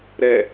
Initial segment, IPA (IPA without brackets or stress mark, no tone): ɾ